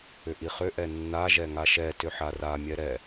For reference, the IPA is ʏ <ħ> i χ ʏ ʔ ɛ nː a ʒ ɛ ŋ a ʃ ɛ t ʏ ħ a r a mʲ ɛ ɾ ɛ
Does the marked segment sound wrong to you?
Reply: yes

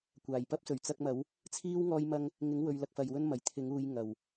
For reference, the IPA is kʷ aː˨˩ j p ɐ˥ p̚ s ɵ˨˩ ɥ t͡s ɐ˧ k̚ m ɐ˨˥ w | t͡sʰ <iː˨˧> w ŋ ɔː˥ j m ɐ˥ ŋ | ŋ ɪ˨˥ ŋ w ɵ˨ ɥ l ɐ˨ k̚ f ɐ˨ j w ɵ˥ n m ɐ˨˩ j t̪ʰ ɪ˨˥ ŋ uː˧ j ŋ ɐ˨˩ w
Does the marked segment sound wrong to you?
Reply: yes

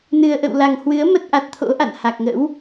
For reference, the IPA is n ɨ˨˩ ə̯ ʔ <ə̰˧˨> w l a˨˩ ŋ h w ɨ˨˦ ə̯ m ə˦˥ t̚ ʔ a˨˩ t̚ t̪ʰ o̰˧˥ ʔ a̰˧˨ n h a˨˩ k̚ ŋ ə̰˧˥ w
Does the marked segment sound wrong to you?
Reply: no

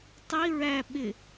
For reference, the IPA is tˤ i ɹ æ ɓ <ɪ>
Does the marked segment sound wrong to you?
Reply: no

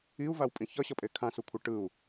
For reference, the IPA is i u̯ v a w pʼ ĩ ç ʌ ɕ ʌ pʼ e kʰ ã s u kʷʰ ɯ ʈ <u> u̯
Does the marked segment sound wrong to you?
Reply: yes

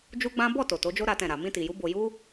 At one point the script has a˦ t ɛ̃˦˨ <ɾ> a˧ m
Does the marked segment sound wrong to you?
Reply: no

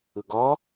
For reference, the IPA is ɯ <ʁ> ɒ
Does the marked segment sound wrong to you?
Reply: yes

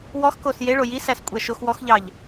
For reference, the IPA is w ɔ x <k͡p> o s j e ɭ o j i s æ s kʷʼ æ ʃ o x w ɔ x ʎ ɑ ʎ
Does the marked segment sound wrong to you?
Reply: yes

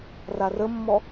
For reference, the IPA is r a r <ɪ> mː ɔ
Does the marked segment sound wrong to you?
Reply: yes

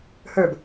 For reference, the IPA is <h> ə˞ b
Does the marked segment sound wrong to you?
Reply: no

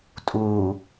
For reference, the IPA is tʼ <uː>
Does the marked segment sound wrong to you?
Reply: no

